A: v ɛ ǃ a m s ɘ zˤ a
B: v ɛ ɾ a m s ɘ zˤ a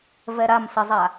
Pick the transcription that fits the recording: B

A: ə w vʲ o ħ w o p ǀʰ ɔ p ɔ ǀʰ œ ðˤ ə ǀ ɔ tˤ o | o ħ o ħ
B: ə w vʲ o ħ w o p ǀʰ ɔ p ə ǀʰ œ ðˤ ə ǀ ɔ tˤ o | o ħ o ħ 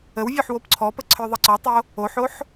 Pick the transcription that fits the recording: B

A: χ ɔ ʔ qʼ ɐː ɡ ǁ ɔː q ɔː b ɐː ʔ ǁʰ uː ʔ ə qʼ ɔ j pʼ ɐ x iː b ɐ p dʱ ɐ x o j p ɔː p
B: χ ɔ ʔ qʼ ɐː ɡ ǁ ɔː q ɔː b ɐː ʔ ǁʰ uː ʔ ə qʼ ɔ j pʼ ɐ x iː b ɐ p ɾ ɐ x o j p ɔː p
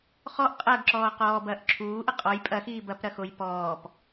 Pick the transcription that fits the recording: B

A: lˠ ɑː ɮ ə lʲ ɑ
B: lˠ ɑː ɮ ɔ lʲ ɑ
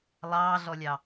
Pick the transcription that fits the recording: B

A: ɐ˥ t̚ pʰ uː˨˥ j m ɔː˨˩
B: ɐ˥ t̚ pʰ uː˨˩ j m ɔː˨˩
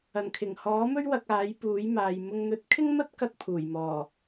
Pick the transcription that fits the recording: B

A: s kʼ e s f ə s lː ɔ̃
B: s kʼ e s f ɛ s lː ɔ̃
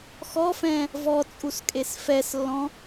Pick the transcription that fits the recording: B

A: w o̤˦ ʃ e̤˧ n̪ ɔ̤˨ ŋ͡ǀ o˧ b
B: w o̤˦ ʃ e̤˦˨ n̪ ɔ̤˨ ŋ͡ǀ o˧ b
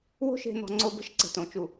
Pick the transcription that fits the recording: A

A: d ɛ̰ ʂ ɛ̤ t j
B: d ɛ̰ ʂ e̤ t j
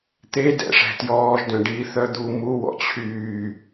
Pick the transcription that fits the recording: A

